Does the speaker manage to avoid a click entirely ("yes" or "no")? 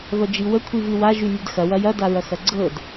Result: no